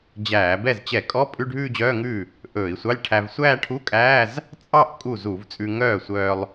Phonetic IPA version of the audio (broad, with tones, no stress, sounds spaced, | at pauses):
d͡ʑ æː˧˩˧ b ɛ˥˩ z t͡ɕ ɛ˧˩˧ kʼ ɔ˧˥˧ pʼ ʉ˧˥˧ ɖʱ ʉː˥˧ d͡ʑ œː˧˥˧ ŋ ʉː˥˩ | ʔ ɵː˧˩˧ i̯ sʷ ɑ˧˥˧ lʲ ʈʰ æ˧ v sʷ æː˥˧ ʈʰ u˧˥˧ kʼ æː˧˥˧ z | t͡sʼ ɑ˥˧ ʔ kʼ u˥˩ z u˧˩˧ v t͡sʼ ʉ˧ ŋ œː˥˩ sʷ œː˧ lˠ